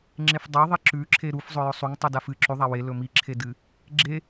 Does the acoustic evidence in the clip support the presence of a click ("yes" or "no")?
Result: yes